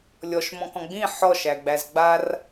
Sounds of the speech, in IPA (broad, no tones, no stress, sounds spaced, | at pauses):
lʲ ɔ ʃ m ɔ̃ k ɔ̃ ɡ͡b ĩ ħ ɔ ʃ æ ɡ͡b æ z ɡ͡b a r